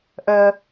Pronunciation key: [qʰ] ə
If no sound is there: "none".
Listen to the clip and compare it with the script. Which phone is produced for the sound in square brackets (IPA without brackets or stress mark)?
ʔ